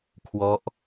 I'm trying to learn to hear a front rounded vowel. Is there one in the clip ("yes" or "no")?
no